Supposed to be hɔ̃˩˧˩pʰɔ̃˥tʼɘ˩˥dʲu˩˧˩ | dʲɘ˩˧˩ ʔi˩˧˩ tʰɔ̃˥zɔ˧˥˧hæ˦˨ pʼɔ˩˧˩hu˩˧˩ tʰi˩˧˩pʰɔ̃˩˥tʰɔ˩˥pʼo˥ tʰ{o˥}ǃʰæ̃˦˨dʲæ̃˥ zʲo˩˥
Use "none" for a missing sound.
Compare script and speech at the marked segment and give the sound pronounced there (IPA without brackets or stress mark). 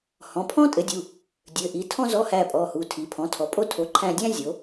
o˩˥